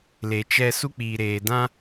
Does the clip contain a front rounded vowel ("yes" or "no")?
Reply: no